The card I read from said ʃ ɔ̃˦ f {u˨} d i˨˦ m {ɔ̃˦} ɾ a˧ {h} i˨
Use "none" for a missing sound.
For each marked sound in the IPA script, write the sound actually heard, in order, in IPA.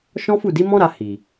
u˦˨, ɔ̃˦, h

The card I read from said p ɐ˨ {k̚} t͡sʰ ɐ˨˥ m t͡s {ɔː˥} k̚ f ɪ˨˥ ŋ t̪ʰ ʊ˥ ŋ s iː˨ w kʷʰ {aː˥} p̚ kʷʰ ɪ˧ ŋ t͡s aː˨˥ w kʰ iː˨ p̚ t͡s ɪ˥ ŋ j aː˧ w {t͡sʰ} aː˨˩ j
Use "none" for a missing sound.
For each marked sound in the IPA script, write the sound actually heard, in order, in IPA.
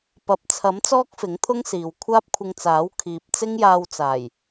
p̚, ɔː˥, aː˥, t͡s

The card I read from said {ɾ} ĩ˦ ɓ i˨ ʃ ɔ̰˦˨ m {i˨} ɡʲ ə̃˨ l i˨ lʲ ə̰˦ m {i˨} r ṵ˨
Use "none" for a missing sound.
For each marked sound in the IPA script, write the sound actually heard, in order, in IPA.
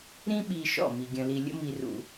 ɾ, i˨, i˨

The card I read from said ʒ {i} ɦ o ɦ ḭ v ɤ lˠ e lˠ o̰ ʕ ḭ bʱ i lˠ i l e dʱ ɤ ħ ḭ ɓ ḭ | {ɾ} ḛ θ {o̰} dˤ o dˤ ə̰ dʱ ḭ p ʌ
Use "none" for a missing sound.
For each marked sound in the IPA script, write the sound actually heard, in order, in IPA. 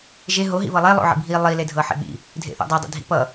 e, dʱ, o̰

